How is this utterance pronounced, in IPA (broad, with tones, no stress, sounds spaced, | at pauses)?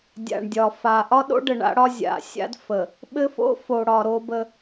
dʲ a̰˨ ɳ dʲ ɒ˨ f a˨ ʔ ɒ˦ ɗ o̰˦ ɖ ə˨ ɳ a̰˦ ɽ ɒ˦ zʲ a̰˨ sʲ a̰˦ d f ə˨ | ɓ ɘ˦ f o̰˦ f o˨ ɽ ɒ˨ ɾ o˦ b ə˦